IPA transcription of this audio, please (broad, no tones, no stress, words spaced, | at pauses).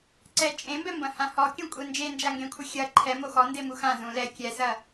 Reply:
ǀɛ t͡ʃʼẽmbɛmbɐ̃hã hɔkʲũkʷʼɛ nd͡ʒend͡ʒaŋɡẽkʷʰɘ xʲɐ ǃʰɛmo xɔndemu xã zũ lɛ kʲɛsɐ